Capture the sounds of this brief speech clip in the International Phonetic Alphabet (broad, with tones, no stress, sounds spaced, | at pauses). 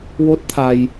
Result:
w o˦˥ t̚ t̪ʰ a˧ j